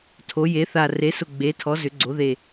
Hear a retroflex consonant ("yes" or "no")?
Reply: no